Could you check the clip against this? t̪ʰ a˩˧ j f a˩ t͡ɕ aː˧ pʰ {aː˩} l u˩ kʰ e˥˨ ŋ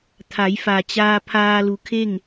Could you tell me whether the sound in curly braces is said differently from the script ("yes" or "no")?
yes